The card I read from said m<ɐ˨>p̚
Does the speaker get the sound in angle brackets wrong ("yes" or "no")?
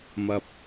no